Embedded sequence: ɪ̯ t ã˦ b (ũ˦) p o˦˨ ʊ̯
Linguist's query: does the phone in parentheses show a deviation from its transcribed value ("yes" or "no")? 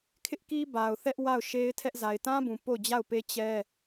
yes